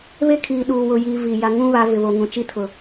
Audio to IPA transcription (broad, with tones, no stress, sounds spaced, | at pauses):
β e˦ kʰ iː˨ ɗ uː˨ w ʊ˨ j iː˨ v i˨ j a˨ ŋ ũ˦ β a˨˦ v ɪ˨ β o˨ ŋ ũ˨ t͡ʃ i˦ tʰ ʊ˨